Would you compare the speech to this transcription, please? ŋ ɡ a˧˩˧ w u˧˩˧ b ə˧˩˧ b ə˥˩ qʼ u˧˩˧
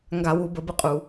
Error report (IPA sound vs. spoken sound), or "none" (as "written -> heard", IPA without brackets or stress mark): none